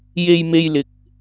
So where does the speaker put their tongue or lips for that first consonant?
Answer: palate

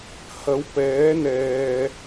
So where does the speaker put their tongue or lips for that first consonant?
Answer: throat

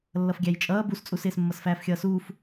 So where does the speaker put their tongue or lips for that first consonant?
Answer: tongue tip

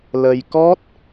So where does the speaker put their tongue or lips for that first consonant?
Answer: tongue tip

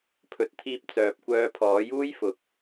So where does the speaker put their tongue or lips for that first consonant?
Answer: lips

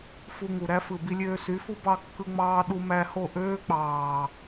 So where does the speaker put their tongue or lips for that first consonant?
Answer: lips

